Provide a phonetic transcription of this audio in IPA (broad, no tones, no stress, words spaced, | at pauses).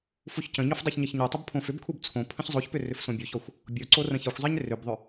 fuçcə̃ɲof dˤeçɲʌçɲotˤʌb pʰõfʏbkʰub t͡sʰõ pʰə̃çzˤoçpʏ rʏfsõbʲoçɔxʷ | bʲoǀo rə̃çʌxʷzˤeɲ rʏbðˤʏ